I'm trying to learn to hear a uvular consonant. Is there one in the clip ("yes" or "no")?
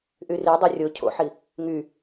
no